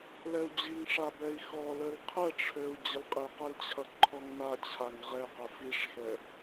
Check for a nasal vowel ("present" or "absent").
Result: absent